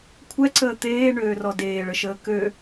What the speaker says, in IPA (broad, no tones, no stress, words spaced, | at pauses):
kʷʰɛǀəː t̪eːɳøːrɔ deːɭəʃəː kø